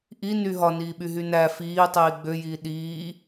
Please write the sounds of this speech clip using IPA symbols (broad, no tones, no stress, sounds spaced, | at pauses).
ʔ i n y ɦ ɒ n iː ɓ y ɦ y n æ f iː tˤ iː ɡ͡b ø j iː ɗ iː